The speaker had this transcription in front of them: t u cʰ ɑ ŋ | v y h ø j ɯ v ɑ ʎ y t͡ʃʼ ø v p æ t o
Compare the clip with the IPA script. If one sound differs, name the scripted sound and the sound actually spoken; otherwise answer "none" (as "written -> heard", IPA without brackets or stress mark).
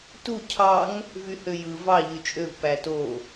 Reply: none